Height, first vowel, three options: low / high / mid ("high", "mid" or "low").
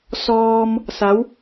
mid